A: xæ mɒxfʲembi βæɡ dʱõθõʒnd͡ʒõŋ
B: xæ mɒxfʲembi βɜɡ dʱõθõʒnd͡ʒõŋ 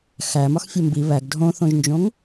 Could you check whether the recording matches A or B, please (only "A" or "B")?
A